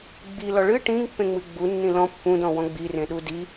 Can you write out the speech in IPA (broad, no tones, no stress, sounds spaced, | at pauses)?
ɡ͡b i l ɔ ɭ ɨ ʈ ĩ ŋ pː ẽ ŋ͡m ɨ ɡ͡b u nː ĩ l ɔ̃ pː ũ d ɔ̃ w ɔ̃ ɡ͡b i r ẽ ɗ u d i